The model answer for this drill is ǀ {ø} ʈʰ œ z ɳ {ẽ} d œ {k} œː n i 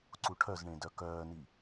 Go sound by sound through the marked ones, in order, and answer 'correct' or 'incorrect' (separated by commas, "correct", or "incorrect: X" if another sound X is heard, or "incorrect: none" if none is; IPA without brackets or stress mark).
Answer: incorrect: u, correct, correct